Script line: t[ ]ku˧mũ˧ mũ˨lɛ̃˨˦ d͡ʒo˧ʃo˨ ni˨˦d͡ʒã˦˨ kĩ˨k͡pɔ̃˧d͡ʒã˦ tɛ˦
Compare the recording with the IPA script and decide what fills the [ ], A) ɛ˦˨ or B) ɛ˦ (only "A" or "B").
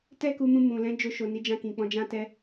B